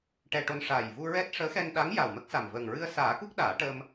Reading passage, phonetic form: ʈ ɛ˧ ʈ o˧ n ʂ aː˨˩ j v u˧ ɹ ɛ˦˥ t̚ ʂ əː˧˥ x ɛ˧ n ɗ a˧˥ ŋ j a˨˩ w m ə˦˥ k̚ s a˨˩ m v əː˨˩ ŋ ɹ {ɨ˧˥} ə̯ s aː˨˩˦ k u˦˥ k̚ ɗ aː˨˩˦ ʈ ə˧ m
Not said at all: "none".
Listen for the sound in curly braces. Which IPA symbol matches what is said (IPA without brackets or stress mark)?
ɨ˧